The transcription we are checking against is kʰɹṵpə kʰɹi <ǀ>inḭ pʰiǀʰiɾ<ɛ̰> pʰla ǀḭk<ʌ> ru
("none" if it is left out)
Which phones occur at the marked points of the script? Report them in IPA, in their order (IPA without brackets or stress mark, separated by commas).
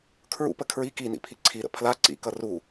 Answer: k, ə̰, ʌ